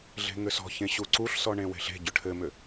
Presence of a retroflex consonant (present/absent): present